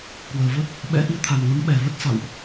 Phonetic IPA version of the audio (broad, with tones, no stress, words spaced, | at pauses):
kwəː˨˩və˦˥t̚ | ɓɛ̰˧˥ ʔi˨˦t̪ʰa˨˩nŋə˨˦m ɓɛ˨˩və˦˥t̚sa̰˧˨wʔ